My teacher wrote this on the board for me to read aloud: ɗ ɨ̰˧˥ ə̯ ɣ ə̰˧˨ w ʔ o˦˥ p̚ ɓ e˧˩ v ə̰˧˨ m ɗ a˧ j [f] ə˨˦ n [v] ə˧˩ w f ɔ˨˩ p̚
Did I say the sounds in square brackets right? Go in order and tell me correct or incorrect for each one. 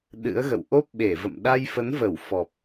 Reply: correct, correct

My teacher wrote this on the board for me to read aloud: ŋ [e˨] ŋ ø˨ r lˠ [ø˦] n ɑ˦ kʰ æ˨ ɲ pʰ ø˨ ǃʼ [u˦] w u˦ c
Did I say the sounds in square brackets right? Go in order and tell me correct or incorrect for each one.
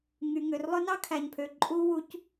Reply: incorrect: y˨, incorrect: ɵ˦, correct

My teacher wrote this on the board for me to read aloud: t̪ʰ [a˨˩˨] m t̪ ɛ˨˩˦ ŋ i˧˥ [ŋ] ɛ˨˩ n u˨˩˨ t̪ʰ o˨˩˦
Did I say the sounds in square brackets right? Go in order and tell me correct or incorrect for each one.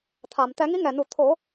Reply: correct, correct

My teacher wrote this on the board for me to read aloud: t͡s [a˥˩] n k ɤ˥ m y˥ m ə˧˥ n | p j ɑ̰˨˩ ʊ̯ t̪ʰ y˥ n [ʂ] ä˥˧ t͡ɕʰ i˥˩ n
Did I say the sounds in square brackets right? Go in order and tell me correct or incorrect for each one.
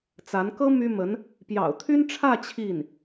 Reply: incorrect: a˧˥, incorrect: ʈ͡ʂʰ

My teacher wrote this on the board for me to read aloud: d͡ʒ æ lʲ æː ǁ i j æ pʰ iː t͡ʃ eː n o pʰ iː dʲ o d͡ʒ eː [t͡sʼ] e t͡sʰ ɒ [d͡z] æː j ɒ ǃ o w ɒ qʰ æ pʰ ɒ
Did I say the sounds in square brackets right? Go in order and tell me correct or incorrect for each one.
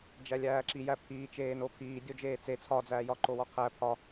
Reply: incorrect: t͡s, correct

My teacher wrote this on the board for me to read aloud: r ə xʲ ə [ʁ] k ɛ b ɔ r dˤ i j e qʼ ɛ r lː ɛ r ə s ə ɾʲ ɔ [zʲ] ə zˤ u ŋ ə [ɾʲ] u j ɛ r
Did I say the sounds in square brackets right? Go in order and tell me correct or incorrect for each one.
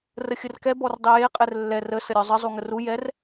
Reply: incorrect: r, incorrect: zˤ, incorrect: r

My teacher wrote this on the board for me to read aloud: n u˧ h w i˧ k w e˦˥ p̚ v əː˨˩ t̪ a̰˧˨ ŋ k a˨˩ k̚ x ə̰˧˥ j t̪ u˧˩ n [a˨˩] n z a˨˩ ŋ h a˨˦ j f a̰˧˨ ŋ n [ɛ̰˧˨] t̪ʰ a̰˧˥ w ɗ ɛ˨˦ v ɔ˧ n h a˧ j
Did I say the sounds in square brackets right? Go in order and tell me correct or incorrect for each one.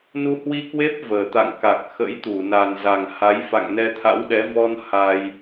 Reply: correct, incorrect: ɛ˧

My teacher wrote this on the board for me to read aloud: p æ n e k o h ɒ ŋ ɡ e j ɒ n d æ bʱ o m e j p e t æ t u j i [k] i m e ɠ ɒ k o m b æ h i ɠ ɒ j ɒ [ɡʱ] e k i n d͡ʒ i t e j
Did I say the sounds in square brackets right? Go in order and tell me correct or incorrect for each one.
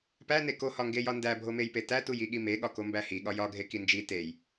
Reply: incorrect: ɠ, correct

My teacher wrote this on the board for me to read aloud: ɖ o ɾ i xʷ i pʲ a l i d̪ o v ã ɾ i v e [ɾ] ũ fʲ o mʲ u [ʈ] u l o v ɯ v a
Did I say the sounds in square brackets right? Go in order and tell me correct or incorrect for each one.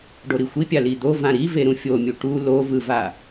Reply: correct, correct

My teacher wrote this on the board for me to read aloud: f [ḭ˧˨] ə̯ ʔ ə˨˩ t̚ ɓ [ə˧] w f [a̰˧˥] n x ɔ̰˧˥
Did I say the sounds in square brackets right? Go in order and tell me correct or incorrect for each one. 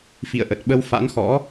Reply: correct, correct, correct

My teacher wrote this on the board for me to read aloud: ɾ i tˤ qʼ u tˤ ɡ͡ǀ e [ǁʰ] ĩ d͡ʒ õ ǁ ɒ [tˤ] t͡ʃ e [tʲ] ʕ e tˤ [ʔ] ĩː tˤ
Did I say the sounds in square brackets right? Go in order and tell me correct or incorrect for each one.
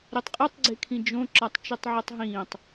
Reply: incorrect: kʰ, correct, incorrect: tˤ, incorrect: ɦ

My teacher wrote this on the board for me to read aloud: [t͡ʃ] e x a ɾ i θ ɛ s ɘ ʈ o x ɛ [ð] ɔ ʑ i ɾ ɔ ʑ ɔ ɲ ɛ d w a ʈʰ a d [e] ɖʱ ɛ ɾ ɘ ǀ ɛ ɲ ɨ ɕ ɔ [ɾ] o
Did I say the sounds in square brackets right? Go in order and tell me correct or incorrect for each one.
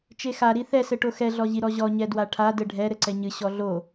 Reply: correct, incorrect: ɮ, incorrect: ɘ, incorrect: ɮ

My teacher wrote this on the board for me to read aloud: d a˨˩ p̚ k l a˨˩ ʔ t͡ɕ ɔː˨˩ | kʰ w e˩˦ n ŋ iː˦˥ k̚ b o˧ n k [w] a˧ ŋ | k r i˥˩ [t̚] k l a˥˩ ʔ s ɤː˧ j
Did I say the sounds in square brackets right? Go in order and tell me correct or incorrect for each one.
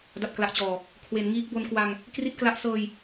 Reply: correct, correct

